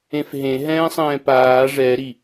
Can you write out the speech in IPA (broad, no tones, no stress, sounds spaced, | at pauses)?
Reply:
ẽ f ɦ ẽ ɦ ɛ̃ː sˤ ɛ̃ː p aː ʐ ɛ ɾ i